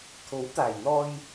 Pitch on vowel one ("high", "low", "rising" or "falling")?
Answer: rising